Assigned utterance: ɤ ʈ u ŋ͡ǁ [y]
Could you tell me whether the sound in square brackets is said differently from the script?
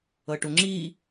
yes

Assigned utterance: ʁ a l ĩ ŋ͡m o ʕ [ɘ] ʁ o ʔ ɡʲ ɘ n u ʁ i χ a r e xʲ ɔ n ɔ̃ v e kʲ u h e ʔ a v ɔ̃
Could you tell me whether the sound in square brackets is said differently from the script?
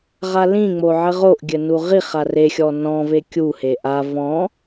no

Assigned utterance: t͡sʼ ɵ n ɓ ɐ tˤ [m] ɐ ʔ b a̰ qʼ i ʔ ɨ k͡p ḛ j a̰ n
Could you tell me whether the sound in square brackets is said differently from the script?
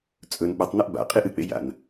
yes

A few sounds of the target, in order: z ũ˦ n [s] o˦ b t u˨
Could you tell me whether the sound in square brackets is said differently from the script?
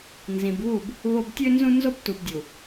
yes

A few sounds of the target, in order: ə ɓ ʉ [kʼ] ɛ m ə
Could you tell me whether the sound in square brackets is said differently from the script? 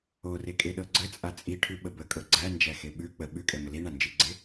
no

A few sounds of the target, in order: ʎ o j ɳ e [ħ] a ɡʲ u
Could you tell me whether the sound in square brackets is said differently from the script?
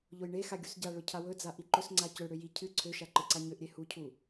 yes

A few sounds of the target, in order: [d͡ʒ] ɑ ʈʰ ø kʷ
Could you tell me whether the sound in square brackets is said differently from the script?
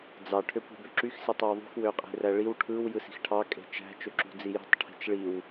yes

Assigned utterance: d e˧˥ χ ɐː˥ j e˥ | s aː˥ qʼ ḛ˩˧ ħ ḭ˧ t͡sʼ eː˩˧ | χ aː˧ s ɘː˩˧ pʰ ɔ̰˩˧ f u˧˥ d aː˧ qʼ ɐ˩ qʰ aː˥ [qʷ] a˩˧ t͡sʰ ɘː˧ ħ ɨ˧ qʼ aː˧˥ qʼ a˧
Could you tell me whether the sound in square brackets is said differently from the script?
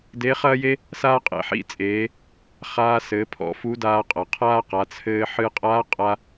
yes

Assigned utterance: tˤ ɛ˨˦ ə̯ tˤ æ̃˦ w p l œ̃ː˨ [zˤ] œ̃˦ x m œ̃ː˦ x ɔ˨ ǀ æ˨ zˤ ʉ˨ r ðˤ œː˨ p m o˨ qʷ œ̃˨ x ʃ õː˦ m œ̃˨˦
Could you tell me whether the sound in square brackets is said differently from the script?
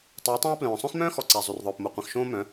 yes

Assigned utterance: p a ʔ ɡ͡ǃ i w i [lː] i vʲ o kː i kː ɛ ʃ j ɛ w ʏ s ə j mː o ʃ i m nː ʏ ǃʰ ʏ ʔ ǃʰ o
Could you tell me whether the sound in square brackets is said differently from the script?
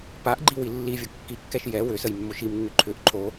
no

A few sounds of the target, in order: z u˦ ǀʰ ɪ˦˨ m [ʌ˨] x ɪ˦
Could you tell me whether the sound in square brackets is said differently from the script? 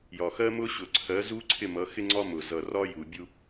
yes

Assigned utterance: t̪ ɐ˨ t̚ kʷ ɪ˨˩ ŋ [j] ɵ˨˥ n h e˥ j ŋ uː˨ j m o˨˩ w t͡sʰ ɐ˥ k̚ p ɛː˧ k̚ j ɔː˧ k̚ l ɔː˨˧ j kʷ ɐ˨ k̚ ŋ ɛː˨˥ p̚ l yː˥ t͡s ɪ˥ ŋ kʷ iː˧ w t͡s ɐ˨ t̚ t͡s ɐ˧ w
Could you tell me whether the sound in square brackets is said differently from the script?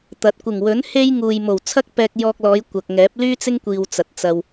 yes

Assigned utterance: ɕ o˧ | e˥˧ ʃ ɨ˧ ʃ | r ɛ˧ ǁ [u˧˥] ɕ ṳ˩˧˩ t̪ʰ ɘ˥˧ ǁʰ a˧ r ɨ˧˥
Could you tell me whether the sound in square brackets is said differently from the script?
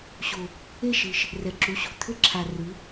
no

